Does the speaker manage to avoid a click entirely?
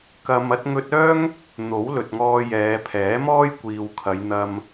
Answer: yes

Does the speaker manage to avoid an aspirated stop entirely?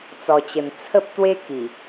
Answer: no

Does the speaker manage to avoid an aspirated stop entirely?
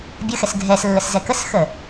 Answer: yes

